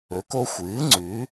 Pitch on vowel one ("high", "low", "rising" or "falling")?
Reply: rising